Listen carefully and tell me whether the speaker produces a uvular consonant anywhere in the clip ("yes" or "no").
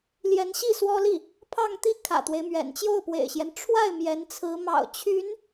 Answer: no